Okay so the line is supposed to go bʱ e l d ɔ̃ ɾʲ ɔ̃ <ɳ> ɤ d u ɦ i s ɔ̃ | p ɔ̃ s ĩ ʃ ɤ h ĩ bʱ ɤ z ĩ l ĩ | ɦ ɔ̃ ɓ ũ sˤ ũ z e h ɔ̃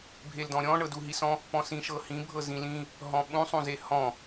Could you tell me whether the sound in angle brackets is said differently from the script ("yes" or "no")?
no